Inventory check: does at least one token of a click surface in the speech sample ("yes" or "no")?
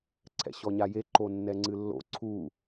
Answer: yes